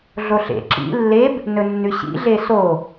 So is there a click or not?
yes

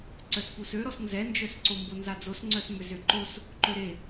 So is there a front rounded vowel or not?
yes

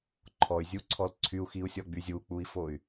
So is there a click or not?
yes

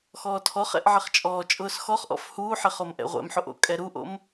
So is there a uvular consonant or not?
yes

